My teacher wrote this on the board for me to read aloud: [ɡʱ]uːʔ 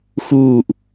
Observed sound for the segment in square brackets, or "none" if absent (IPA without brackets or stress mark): x